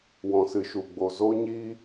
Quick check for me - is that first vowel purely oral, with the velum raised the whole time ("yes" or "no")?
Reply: no